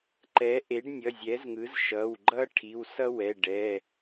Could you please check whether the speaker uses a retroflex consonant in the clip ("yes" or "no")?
yes